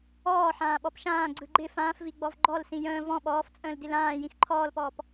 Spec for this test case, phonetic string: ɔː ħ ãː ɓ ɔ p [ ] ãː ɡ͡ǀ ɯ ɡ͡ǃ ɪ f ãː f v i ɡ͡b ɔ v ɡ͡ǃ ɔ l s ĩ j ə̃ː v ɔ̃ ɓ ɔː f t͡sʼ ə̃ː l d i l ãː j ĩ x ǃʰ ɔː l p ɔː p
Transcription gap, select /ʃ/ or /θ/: ʃ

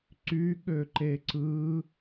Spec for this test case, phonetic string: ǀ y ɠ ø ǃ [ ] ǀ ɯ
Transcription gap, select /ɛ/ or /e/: e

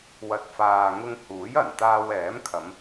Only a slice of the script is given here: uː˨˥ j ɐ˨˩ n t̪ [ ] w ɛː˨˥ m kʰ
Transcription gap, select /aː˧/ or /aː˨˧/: aː˧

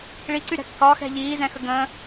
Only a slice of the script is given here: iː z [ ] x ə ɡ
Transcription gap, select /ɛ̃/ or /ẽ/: ɛ̃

